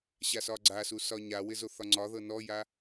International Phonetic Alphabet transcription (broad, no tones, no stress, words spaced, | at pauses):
ɕasɒɡ͡ǀasu sɒɲawɪ zoθɒŋ͡ǀɒðɤ nɔja